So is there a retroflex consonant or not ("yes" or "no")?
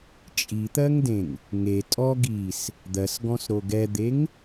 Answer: no